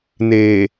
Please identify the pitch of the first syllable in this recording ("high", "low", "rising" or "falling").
low